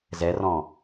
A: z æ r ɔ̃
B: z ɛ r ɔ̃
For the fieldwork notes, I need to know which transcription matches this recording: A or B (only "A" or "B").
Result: B